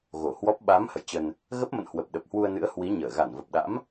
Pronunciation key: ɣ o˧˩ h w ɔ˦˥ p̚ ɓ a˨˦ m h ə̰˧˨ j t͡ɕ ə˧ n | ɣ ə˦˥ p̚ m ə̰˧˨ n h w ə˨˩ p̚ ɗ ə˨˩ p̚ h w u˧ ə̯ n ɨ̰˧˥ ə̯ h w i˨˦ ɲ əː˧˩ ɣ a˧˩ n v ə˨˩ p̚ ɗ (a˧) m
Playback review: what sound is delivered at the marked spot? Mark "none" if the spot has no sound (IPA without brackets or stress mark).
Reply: a̰˧˥